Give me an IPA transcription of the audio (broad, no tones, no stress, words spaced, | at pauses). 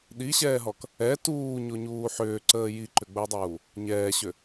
ɗiɕɛːɦɔk | ɛ tuːɲoɲuː ħʏːǀəː jiǃʏɡ͡bəɪ̯dˤuː | ɲɛːɕʏ